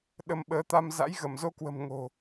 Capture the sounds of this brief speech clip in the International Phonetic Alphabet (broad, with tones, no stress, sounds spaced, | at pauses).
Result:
ɗ ə˧ m ɓ əː˨˦ t̪ a˧ m z a̰˧˥ j ɣ ə˧˩ m z o˧ k w ə̤˨˩ m ŋ o̤˨˩